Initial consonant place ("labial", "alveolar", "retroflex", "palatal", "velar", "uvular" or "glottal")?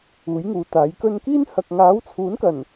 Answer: palatal